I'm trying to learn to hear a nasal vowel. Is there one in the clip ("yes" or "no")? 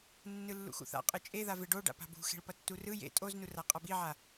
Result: no